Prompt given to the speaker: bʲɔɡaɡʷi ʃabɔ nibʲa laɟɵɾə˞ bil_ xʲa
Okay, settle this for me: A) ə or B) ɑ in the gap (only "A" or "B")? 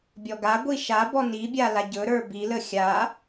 A